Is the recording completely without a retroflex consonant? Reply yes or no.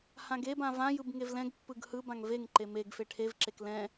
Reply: no